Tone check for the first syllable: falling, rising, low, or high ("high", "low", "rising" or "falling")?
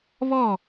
falling